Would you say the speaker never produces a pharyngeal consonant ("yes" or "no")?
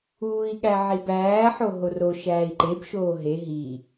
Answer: no